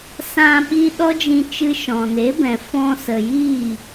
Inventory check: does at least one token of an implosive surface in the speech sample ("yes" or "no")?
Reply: yes